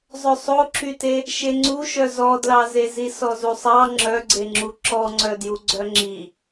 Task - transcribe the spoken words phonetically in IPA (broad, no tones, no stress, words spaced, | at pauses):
zˤɵsˤoǁyte | ʃeŋ͡ǀuʃœ zɔdlɑzezi sɔzusˤɑ ŋ͡ǁœɡ͡ǀeŋ͡ǁu ǁɔŋ͡ǀœdju ɡ͡ǀœŋ͡ǁi